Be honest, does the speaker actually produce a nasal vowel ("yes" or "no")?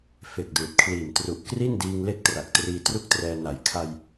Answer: no